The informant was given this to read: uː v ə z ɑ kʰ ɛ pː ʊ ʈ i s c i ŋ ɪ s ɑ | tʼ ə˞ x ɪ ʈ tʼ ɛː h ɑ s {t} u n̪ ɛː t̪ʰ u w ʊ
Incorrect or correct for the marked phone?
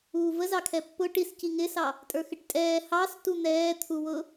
correct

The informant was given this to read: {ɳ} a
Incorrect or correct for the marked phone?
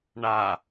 correct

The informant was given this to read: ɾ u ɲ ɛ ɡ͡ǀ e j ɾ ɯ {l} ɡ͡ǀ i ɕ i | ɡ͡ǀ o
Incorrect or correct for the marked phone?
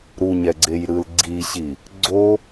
correct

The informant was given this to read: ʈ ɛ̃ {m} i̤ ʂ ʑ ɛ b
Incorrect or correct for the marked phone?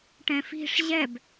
incorrect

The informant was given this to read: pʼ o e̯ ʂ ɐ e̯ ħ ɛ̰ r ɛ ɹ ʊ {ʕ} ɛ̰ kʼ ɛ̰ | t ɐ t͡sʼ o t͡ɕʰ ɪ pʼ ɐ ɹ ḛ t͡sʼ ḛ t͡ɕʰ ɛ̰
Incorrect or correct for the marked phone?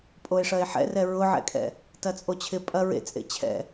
correct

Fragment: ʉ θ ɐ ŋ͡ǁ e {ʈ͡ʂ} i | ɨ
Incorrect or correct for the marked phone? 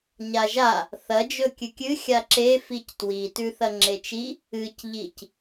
incorrect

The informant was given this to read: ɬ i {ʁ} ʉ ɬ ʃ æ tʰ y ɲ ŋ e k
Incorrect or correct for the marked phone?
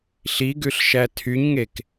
incorrect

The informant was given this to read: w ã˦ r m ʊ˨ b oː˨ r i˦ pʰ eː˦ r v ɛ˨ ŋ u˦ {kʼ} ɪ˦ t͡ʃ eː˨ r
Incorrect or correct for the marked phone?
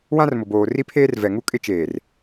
correct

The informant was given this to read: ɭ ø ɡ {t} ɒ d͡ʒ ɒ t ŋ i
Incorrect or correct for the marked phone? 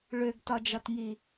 correct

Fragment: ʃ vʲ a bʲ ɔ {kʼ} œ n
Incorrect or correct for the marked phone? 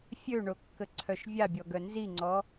incorrect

